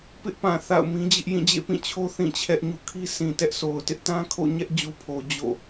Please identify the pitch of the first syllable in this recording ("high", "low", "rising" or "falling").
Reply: high